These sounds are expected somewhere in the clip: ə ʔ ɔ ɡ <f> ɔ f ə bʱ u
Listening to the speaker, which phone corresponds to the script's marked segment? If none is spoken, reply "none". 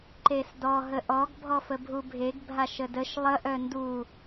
bʱ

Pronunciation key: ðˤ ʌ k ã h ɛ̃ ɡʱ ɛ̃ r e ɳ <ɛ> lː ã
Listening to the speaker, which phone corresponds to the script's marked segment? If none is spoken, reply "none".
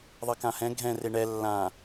ɛ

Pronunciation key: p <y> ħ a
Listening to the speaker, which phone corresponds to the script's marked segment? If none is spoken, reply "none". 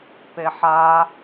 e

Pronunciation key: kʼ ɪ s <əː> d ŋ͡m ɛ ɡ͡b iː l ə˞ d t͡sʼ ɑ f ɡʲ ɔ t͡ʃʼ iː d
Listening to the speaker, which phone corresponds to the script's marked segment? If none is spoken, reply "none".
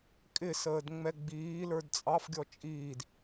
əː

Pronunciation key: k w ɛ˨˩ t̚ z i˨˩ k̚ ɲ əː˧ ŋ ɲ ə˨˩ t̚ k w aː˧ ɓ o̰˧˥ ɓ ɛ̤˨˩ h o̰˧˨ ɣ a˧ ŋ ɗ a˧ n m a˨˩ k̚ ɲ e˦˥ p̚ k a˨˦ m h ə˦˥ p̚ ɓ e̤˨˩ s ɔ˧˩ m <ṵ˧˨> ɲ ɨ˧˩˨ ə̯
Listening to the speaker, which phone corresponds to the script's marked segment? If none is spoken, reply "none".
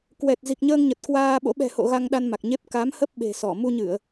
u˧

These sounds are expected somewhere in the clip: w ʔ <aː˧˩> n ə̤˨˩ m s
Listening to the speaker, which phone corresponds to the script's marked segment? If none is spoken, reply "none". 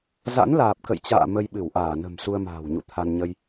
aː˧˩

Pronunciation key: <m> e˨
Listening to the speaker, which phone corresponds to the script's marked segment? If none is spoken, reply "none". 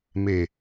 m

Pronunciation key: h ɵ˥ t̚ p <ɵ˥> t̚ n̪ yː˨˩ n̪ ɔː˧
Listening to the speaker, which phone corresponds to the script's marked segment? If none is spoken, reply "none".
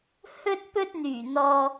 ɵ˥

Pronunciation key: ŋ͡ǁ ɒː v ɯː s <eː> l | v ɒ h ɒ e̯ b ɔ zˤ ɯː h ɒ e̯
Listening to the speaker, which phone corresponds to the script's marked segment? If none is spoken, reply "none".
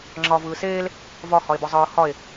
eː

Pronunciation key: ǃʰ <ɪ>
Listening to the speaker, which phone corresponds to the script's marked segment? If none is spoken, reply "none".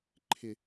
ɪ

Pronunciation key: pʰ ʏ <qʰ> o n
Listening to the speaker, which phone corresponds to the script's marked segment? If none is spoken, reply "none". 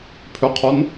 qʰ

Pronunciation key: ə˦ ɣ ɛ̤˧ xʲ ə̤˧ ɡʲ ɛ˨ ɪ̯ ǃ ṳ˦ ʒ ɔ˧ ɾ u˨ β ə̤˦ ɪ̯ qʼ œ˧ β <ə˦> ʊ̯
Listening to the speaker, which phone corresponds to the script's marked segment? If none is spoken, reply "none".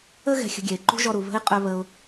ə˧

